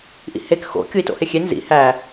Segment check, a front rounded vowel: absent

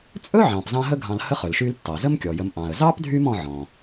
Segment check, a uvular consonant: present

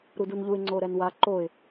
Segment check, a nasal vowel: absent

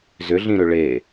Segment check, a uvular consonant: absent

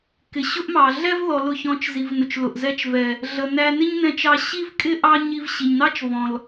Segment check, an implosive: absent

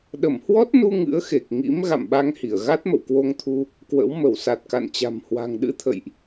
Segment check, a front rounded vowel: absent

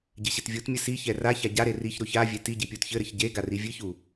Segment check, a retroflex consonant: absent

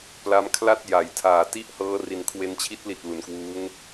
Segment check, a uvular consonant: absent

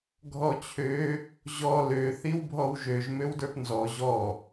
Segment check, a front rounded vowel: present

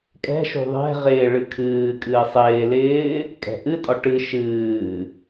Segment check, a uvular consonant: present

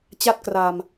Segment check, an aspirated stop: absent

